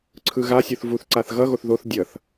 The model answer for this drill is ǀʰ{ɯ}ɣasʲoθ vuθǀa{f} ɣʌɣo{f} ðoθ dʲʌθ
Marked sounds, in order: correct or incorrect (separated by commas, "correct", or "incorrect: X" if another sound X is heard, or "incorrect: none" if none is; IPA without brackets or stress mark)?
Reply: correct, incorrect: θ, incorrect: θ